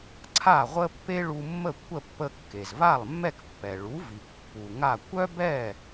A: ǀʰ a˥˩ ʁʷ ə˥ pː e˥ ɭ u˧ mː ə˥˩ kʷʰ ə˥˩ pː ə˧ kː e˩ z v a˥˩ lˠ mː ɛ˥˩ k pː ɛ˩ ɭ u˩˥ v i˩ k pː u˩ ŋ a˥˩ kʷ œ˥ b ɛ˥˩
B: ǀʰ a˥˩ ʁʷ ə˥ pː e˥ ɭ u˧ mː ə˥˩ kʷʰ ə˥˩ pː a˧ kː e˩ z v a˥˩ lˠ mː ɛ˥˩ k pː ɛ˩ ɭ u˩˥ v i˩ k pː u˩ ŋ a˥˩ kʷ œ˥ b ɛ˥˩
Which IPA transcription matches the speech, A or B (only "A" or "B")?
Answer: A